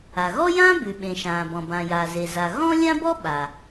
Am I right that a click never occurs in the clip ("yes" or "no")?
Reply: yes